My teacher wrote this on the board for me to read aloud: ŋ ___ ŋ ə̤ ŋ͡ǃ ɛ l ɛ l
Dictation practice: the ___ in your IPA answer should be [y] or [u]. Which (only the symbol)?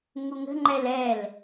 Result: u